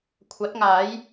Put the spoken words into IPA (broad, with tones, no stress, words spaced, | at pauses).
kʷʰɐ˨˥t̚ŋaː˨˥j